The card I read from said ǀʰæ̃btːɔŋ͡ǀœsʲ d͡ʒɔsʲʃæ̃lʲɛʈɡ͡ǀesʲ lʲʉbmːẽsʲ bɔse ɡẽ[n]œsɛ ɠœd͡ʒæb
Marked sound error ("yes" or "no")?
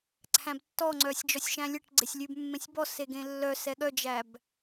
yes